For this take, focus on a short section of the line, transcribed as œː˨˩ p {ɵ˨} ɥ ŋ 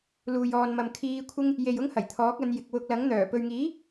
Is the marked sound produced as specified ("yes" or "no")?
yes